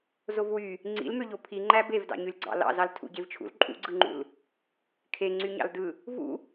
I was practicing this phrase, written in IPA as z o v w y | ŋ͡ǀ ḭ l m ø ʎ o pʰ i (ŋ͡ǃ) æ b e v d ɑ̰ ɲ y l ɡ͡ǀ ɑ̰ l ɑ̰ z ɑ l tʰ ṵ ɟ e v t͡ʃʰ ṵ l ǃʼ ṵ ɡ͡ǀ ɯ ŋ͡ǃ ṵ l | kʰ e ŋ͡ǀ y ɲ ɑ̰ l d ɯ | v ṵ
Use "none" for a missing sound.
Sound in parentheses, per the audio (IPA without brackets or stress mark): ŋ͡ǃ